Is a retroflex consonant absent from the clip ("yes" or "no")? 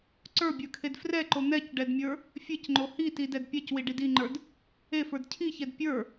no